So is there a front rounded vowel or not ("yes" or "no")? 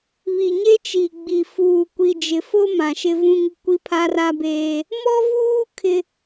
no